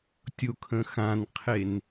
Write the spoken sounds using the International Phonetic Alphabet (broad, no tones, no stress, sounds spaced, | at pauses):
tʲ o kʰ ə̃ x ã n qʰ e n